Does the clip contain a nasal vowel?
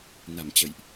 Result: no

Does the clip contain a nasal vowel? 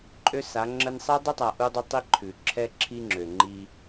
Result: no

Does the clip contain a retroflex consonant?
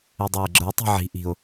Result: no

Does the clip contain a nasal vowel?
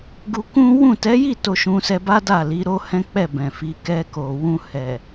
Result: yes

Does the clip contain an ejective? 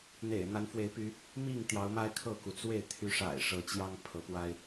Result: no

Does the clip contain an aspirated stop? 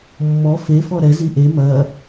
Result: no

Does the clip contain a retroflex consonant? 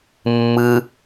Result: no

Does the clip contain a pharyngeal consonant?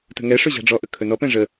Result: no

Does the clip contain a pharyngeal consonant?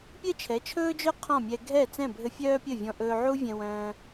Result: yes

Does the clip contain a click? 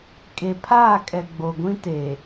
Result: no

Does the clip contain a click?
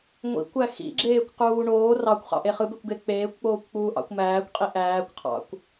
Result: yes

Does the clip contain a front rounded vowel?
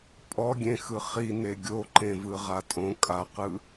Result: no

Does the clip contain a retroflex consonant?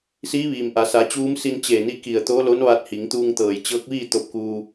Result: no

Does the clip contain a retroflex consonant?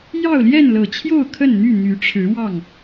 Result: yes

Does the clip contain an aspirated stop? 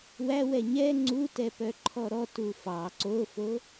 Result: yes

